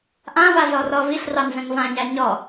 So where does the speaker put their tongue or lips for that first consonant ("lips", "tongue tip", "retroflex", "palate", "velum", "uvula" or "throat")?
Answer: throat